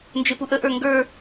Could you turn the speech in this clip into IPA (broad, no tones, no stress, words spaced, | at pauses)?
nd͡ʒepuʔə ʔə˞ŋɡə˞